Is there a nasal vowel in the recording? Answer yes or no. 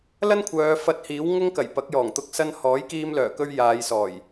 no